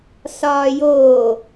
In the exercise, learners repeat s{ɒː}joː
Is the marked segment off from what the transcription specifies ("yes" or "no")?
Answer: no